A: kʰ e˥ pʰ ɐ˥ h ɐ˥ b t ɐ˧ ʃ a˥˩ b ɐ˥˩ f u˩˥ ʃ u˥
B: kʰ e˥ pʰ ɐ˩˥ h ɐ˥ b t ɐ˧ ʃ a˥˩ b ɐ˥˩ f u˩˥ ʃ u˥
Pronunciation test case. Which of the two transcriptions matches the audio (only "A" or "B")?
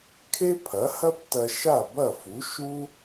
B